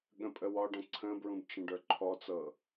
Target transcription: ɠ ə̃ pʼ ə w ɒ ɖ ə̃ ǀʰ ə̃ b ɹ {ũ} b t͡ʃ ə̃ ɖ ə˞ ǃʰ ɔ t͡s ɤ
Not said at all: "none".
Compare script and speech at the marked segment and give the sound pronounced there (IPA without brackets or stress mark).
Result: ũ